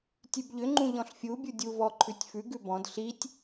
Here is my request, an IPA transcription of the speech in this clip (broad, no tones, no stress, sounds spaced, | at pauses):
tʲ ʉ b ʎ ʏ ŋ͡ǃ ũ ʎ ɔ̃ ɬ fʲ u bʲ u dʲ u v ɔ ǃʰ ʉ tʲ f ʉ ɡ ʉ b ɔ̃ d ɬ i tʲ